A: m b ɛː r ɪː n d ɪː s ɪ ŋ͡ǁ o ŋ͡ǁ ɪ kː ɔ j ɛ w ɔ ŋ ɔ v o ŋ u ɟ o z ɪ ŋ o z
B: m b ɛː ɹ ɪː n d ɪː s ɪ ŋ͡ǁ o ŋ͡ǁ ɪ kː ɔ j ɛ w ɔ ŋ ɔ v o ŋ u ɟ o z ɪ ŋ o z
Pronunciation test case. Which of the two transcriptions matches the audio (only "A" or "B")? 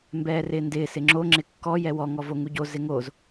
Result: A